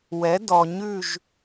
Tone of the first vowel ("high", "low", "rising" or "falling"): rising